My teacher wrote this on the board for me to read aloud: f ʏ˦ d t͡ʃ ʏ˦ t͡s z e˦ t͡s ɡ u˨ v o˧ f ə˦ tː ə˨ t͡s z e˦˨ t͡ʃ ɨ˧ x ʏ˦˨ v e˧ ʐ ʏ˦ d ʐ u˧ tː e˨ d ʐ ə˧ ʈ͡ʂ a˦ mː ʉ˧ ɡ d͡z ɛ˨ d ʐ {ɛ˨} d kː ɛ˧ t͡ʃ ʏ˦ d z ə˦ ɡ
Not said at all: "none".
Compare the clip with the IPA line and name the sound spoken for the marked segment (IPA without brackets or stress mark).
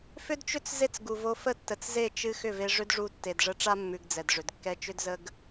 ʏ˨